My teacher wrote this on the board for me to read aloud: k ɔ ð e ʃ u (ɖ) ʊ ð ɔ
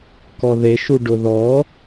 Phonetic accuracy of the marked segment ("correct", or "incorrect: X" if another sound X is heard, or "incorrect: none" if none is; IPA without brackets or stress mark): correct